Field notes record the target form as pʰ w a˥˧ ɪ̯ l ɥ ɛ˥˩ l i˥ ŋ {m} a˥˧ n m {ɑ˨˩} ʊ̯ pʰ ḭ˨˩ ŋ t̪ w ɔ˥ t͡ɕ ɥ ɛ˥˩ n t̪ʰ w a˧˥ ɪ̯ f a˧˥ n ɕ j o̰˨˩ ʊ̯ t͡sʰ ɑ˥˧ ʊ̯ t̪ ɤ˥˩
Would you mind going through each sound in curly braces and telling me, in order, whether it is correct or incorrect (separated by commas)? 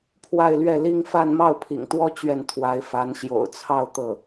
incorrect, incorrect